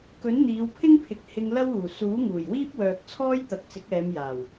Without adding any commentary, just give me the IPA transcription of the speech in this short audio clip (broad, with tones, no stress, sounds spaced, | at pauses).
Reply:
k ɵ˨˥ n n̪ iː˨˧ w pʰ ɪ˥ ŋ pʰ ɪ˨ k̚ h ɪ˧ ŋ l ɐ˥ w uː˨˩ s uː˨˥ ŋ uː˨˩ j w iː˥ p̚ w œː˨ k̚ t͡sʰ ɔː˥ j t̪ ɐ˨˥ k̚ t͡s ɪ˨˥ k̚ ɛː˨˧ m j aː˨˩ w